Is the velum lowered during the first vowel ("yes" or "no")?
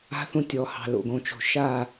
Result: no